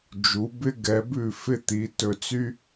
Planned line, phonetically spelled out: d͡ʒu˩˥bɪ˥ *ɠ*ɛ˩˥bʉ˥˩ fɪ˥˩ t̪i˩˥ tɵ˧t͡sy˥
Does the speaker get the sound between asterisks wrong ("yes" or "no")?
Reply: yes